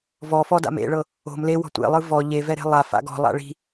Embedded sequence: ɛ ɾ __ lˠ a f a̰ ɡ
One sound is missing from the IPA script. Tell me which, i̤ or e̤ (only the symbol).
e̤